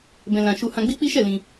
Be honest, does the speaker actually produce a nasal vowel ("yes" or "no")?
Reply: yes